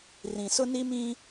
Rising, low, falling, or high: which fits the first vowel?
low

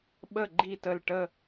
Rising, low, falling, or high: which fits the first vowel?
falling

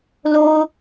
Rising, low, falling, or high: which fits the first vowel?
high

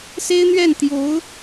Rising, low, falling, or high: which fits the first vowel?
high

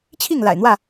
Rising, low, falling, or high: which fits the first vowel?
falling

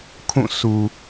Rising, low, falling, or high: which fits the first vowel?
falling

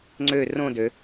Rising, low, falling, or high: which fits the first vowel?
falling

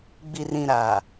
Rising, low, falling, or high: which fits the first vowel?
low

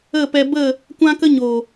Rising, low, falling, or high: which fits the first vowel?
falling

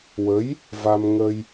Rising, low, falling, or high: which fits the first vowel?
rising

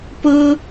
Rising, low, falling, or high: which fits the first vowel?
high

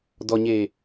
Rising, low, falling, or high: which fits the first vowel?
low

